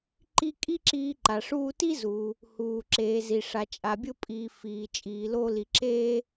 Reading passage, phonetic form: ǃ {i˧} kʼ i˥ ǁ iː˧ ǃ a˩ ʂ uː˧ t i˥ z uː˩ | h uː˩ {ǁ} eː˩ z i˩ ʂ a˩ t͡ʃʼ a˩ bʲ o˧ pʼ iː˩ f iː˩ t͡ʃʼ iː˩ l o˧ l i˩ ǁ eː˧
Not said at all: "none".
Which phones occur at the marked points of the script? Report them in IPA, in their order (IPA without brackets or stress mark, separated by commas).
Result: i˧, ǁ